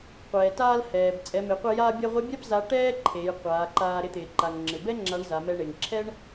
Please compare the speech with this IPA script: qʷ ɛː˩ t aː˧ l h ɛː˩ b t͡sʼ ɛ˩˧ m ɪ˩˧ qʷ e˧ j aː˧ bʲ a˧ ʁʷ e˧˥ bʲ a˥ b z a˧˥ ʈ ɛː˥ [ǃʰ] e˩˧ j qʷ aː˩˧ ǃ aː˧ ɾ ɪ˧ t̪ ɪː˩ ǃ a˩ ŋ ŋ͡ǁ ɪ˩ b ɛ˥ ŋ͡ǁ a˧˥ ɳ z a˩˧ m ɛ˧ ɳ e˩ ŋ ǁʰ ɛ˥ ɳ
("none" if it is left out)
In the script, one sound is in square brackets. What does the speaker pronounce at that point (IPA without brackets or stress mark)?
ǃʰ